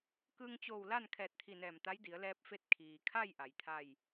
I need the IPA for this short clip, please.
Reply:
kɯː˧ŋt͡ɕoː˧˩w la˥˨nkʰɛː˧˩t̚t̪ʰi˧˩ nɛː˧˩mt̪a˧˥jdi˩˧ə̯ lɛː˧p̚fe˧t̚ kʰiː˩kʰa˥˨j ʔa˩˧jt̪ʰa˥˨j

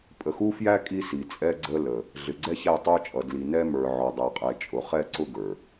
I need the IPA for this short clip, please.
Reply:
pʼə˨xu˦fjæ˦ kʼi˦si˨ t͡sʼɛ˦ɡ͡ǀə˦ lə˨ | ɮɪ˨ɡ͡ǀɛ˦ çæ˦˨tˤə˞˦t͡ʃʼʌ˨ dli˨nɛ˦mə˞˨ ʕɔ˨dˤæ˨qʼɛ˨t͡ʃʼʊ˨ χɛ˦˨ǀʊ˦ ɡə˞˨

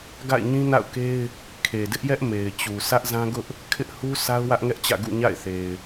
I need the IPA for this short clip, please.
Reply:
ɡa̰˦˨ɪ̯ɲĩ˦na̰˦˨ʊ̯ke˦ɪ̯ | kʰe˨dɪ˦ʔjɛ˦ʔ me˨ɪ̯t͡ɕu˨ sʰä˦ʔzã˦ɡʊ˦ʔ | kʰɪ˦ʔ hu˦ sʰa˦ʊ̯wä˦ʔŋɛ˦ʔt͡ɕä̰˦˨ ɡṵ˦˨ ɲa̰˦˨ɪ̯θe˨ɪ̯

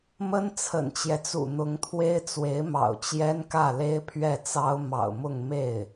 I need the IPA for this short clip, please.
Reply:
mə˥n t͡sʰə̰˨˩nt͡ɕjɛ˦t͡sṵ˨˩ n̪ʊ˧˥ŋt̪ʰwe˥ɪ̯ t͡swe˧˥ɪ̯mɑ̰˨˩ʊ̯ t͡ɕjɛ˥nkä˥˩le˥ɪ̯ pʰɥɛ˥˩t͡sɑ˥ʊ̯ mɑ̰˨˩ʊ̯mʊ˥˧ŋme˥˩ɪ̯

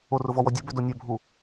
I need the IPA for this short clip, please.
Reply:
orʊ vɔwɔdʲobø donʲœbʱu

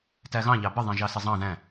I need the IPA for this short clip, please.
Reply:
tæɣɑ̃ʎɑ bə ðˤẽʒɑsezˤɑ̃ ðæ̃

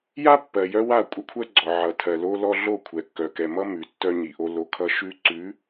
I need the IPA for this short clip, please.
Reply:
ja˦ pːɜ˨jœ˦wa˦˨ kʷʼʌ˦kʷʰɜ˦ɡ͡ǀɔ˨ ʕʌ˨tʰɜ˨lo˦lɔ˦ ɮo˦˨kʷʰɛ˨ kːœ˨kɛ˨mʌ˦ mʉ˨tːœ˦ɲi˨ʔo˦ lo˦kʰʌ˦ ʃʉ˦ǀʉ˨˦

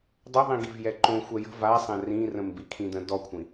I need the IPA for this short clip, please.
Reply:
dˤəðˤĩɡiv jɛǃõ xʷɛjə̤ vasˤɛ̃ rĩrə̃m bikʰĩdə̃ dɔkʷʰĩ

